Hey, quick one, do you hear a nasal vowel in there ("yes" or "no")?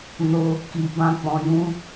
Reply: yes